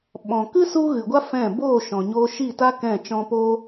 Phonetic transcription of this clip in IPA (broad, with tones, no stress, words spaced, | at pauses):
ɓɔ̃˨kɨ˦ su˦ ɣɨ˨ɡʷa˦ fɛ̃˦˨ boː˦˨ ʃɔ̃˨ɲoː˧ ʃi˦˨ta˦ kɛ̃˦˨t͡ʃɔ̃˦ poː˦